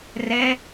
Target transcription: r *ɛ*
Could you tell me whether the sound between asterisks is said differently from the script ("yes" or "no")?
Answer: no